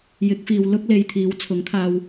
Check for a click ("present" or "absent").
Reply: absent